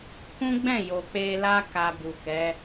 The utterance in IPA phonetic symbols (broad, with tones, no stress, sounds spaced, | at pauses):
k ũ˦ ɡ͡b ɛ̃˦˨ j o˨ k͡p e˧ l a˦ k a˧ b u˨ k ɛ˨˦